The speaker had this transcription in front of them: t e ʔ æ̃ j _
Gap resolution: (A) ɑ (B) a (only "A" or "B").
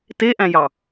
A